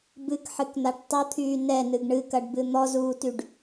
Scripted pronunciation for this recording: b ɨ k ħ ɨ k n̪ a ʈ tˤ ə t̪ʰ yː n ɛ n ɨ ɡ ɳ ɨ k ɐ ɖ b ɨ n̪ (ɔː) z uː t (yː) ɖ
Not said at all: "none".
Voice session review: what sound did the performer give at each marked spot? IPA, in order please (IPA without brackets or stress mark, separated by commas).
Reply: ɔ, y